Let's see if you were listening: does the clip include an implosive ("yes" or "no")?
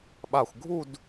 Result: yes